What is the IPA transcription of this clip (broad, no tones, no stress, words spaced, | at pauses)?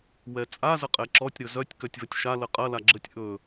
wɛt͡sʼa zəqʼɛǁɔtʲ ɾɵzœtʲ kœtʲvɐtʲʃa ləqʼɐ laɡ͡ǁətʲ ʔɵ